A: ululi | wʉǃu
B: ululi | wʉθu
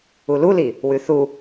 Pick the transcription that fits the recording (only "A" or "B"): B